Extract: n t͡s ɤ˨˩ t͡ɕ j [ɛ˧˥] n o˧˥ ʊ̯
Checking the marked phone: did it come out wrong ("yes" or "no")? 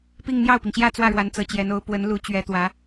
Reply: no